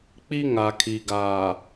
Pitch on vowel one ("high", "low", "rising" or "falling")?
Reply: high